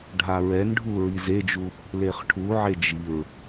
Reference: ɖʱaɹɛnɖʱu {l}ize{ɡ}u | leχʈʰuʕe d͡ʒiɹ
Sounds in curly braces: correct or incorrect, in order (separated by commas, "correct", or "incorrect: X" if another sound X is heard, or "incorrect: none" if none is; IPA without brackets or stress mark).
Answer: incorrect: ɹ, incorrect: d͡ʒ